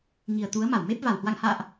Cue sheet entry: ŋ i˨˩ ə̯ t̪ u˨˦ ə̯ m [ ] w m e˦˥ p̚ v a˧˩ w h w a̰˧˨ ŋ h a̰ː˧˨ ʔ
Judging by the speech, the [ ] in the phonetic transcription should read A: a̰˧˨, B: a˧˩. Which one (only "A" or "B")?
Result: B